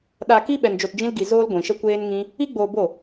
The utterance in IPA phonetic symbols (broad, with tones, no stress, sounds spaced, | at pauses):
ɗ a˧ k i˦ ɓ ɛ˧ n d͡ʒ o˧ t d͡ʒ ĩ˦ l ɡ i˧ z oː˦ l ɡʷ ĩ˨ ʃ ə˦ kʷ eː˦ n ŋ ĩ˦ | i˦ ɡ͡b oː˧ b o˦˨